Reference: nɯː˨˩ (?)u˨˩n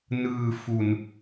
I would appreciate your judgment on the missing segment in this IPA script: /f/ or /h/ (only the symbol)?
f